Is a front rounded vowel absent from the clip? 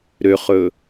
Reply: no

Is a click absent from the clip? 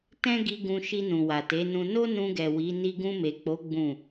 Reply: yes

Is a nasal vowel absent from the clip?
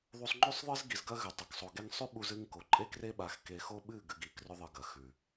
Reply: yes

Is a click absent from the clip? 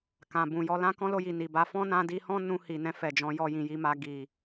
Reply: yes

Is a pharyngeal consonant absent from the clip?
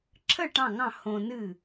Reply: yes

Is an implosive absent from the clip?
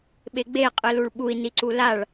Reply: no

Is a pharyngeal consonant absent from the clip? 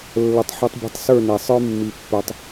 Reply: no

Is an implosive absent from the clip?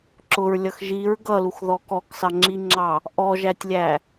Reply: yes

